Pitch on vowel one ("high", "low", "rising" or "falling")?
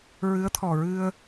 rising